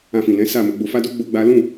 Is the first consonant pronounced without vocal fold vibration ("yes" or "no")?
yes